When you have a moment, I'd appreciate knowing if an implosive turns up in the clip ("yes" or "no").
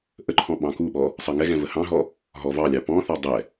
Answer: yes